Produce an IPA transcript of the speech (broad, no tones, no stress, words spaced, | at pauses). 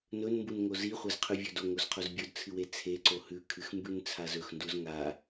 nɵnmbunŋo ziχʷɐzqʰʉvʲɵd oŋozqʰoz bʲɵdt͡sʰɨwe t͡sʰeǀo hʉkʰɨxmbʉnt͡sʰaz ɵxnduz ŋa